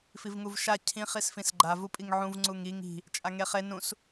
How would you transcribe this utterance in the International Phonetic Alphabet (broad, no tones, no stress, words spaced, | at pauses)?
fivŋuvʃa cʰĩ χisfĩsɡ͡ǃa vupʼiŋʕũv ŋ͡ǀuŋiŋ i̤ | t͡ʃʼaŋeχe nũs